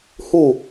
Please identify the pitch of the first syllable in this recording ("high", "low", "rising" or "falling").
falling